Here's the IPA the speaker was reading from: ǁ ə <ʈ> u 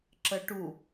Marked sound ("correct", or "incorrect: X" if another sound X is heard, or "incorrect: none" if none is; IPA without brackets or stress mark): correct